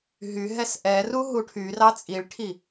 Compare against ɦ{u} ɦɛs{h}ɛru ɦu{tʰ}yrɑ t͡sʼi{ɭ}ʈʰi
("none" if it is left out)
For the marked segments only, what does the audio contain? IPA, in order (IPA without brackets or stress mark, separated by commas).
y, ʔ, ʈʰ, ɭ